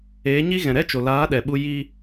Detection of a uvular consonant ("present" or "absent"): absent